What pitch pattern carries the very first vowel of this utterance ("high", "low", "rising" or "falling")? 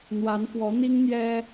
rising